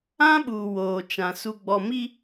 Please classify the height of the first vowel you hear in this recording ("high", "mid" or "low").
low